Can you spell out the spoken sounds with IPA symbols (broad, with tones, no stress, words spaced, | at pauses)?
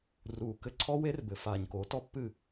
ruː˨kɘ˦ ǀʰɔ˦we˦r bɘ˨faː˨ɲ koː˨˦tɔ˦pːɨː˦˨